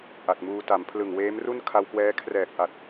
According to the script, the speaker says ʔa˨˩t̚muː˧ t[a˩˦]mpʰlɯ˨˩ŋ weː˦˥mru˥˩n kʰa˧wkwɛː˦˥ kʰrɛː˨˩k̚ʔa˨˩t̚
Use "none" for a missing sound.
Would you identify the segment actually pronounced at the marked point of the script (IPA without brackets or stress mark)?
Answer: a˩˦